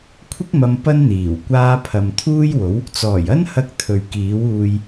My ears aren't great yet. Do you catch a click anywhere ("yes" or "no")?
no